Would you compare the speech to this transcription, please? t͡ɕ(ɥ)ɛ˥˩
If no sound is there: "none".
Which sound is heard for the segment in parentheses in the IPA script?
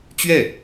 ɥ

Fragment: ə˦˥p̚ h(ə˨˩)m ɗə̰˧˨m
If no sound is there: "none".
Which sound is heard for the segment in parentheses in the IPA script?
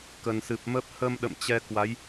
ə˧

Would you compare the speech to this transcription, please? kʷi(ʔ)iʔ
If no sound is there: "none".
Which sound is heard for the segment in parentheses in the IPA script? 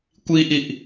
ʔ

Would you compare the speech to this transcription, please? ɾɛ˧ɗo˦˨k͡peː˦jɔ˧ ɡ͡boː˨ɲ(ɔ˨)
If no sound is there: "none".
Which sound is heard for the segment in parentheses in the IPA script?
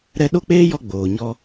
ɔ˦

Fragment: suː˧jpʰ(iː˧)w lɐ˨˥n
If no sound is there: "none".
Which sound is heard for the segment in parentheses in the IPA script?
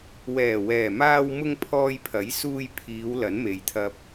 iː˨˧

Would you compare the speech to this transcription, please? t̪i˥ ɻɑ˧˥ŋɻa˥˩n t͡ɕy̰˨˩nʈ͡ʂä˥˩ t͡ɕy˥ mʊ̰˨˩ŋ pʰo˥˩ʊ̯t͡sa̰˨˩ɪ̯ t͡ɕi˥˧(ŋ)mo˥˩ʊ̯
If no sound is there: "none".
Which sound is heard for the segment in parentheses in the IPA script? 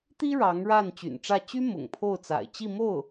none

